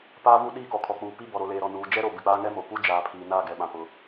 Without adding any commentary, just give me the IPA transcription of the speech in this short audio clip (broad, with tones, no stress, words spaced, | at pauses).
paː˦vu˦ ɗiː˦˨kɔ˨kʰɔ˨k͡puː˨ pi˦ bɔ˨ɾo˨leː˨ɾɔ˨ nuː˨d͡ʒɛ˦ɾo˨ bɪ˨k͡paː˦ŋɛ˦mo˨ pu˦d͡ʒaː˨pʰiː˨ naː˦˨ɡɛ˨ɓã˨ pʊ˨